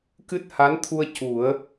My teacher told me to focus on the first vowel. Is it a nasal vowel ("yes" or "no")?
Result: no